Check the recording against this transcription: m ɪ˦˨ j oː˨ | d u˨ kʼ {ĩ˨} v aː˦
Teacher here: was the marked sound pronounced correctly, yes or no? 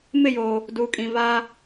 yes